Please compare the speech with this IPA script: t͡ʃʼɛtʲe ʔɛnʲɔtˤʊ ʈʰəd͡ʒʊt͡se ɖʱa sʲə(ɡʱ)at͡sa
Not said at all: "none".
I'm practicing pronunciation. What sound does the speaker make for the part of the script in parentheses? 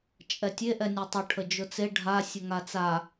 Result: ŋ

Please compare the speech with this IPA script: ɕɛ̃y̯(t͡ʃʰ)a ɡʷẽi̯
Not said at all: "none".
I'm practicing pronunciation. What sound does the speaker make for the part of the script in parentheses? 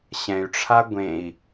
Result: ʈ͡ʂʰ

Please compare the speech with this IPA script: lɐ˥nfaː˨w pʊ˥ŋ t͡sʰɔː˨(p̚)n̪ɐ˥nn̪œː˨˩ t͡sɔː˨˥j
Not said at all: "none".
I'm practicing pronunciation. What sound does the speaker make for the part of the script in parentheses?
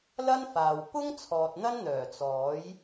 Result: t̚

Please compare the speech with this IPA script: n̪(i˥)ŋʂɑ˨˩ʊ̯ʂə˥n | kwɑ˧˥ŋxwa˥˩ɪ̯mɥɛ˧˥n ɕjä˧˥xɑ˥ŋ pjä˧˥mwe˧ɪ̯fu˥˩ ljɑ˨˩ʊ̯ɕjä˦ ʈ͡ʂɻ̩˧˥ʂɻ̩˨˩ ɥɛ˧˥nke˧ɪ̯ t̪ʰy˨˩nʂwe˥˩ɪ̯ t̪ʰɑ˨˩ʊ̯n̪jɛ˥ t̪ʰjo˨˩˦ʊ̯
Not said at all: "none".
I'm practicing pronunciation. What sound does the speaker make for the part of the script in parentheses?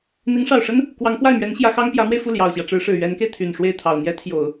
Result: i˧˥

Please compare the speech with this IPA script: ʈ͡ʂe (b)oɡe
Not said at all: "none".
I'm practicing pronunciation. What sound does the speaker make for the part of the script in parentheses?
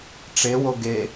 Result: w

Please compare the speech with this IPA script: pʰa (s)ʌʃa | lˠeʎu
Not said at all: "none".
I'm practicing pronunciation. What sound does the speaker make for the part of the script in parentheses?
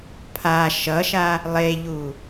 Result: ʃ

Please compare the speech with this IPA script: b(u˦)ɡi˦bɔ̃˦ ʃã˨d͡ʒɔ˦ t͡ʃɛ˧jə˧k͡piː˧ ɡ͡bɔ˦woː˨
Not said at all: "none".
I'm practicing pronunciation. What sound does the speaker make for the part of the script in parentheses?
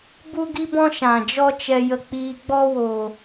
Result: u˦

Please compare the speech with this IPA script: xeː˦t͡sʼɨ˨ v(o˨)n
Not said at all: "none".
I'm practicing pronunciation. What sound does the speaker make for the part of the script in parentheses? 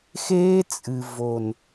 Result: o˨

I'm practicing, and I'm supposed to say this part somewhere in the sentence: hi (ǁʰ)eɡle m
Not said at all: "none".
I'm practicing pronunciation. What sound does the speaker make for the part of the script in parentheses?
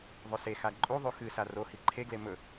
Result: ǃʰ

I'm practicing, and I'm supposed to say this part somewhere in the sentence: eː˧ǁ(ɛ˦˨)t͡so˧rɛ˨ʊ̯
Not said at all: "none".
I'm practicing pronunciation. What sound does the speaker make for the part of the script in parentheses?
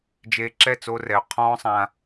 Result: ɛ˦˨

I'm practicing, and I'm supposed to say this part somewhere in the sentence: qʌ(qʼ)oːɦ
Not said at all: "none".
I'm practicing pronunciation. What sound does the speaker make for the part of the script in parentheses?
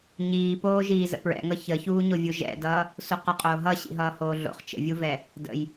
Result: qʼ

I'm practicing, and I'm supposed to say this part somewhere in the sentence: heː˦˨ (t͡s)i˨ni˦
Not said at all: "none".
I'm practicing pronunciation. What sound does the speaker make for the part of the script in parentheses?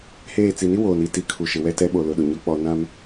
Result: t͡s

